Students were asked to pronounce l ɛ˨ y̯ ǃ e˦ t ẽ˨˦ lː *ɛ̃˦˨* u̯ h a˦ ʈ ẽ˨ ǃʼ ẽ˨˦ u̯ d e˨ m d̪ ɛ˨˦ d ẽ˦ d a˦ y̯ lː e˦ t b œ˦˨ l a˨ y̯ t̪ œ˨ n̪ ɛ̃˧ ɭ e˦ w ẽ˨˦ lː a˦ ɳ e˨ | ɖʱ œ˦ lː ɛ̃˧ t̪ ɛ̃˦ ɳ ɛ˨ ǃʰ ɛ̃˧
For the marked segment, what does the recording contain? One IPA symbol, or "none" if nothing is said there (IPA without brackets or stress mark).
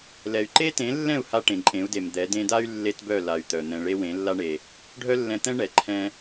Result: ɛ̃˦˨